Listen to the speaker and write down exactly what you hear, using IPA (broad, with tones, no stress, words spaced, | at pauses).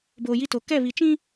boː˨ji˦to˨ kɛ˦˨βi˨t͡ʃĩ˦